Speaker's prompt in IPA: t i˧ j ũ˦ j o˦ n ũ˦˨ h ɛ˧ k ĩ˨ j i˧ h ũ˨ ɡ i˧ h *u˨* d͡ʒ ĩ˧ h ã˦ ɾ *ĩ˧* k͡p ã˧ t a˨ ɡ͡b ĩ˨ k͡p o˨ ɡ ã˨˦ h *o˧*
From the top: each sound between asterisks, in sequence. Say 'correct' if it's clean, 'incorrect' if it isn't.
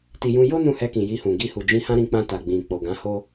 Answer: correct, correct, incorrect: o˦

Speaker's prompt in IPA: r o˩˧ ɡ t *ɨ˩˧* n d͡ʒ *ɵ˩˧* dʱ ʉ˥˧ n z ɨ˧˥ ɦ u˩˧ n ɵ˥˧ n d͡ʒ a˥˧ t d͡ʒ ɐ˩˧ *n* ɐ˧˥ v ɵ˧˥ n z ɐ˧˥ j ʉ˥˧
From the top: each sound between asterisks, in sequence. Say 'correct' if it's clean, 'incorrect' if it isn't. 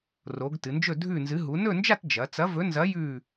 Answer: correct, incorrect: ɵ˥˧, incorrect: t͡s

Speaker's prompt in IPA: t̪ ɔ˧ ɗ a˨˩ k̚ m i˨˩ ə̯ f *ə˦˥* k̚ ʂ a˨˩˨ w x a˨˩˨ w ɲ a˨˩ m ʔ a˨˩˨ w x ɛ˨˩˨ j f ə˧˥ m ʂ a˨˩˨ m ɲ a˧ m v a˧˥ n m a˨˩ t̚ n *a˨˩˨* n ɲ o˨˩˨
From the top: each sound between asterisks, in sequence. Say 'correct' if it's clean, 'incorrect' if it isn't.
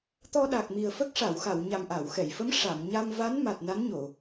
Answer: correct, incorrect: a˧˥

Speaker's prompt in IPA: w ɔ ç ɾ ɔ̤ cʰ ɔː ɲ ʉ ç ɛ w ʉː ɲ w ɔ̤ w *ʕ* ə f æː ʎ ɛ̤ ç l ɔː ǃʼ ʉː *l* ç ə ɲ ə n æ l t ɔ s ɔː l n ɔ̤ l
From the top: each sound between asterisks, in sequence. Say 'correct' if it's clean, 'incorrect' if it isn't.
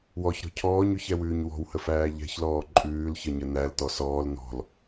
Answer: incorrect: h, correct

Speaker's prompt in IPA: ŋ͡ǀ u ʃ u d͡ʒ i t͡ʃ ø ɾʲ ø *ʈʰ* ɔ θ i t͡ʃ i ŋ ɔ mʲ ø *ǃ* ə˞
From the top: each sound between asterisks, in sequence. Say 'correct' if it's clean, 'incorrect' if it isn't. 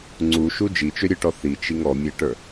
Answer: incorrect: ʈ, incorrect: ʈ

